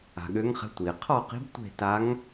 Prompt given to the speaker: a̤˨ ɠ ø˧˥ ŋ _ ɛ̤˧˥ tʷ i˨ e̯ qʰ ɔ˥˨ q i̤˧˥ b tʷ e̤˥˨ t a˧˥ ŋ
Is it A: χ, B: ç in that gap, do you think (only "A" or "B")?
A